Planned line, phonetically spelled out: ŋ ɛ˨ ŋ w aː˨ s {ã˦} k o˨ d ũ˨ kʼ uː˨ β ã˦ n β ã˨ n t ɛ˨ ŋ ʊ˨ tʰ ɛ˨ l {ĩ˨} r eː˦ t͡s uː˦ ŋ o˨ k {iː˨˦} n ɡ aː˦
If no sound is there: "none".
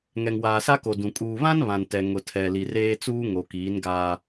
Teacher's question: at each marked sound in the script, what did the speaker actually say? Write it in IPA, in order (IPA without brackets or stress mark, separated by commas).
a˦, i˨, iː˨˦